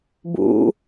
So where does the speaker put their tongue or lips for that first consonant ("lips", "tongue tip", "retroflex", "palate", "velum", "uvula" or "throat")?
lips